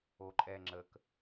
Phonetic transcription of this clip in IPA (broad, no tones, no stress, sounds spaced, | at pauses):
o ǃʼ ɛ ŋ͡ǁ ə k